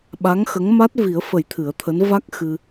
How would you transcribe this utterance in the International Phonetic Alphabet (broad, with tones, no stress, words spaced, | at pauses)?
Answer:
ɓa˧˥ŋxə˧˥ŋma˦˥t̚ vi˨˩˦ə̯fə˨˩˦j t̪ʰɨ˨˩˦ə̯t̪ʰəː˧˥n va˦˥k̚xɨ˧